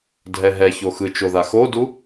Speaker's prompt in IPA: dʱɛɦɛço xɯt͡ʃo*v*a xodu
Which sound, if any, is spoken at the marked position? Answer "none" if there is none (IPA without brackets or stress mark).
ð